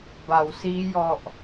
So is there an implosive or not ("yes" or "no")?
no